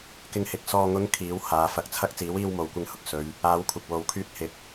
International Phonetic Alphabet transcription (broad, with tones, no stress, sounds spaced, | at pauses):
k ɪ˧ ŋ h ɪ˨ k̚ s ɔː˨ ŋ ʊ˨˧ ŋ kʰ iː˨˥ w h aː˨˧ f ɐ˧ k̚ t͡sʰ ɐ˥ k̚ t͡s iː˨˥ w iː˧ w m o˨ w kʷ ɪ˧ ŋ h ʊ˧ k̚ s ɵ˨˧ ɥ | aː˨˧ w kʷʰ ɪ˨ k̚ w o˨ w kʰ yː˧ t̚ h ɪ˨˥ k̚